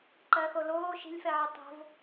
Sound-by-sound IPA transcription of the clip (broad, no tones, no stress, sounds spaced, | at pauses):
ǃ ɜ x o l oː ʃ i̤ lʲ f ɛ ʕ ɘ tˤ o̤ v